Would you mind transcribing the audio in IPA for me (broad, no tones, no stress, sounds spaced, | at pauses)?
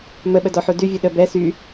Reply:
m ə ɓ ə d ɔ ħ u d y vʲ u ɗ ə b ɛ s y